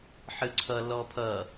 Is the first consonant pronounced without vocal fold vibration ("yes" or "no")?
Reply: yes